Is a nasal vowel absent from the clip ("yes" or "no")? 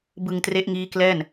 yes